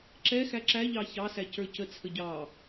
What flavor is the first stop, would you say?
click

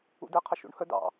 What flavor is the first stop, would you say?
plain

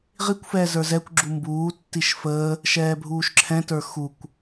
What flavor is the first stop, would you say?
plain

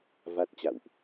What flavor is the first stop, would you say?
plain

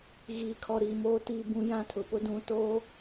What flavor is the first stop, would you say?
aspirated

